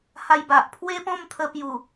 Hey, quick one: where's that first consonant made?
throat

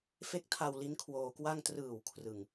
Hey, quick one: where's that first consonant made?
lips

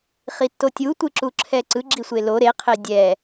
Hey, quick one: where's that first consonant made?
uvula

